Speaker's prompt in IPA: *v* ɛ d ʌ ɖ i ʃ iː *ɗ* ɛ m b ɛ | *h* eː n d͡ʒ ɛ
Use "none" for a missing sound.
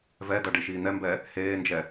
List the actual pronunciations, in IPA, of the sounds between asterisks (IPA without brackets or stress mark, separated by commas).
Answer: v, n̪, h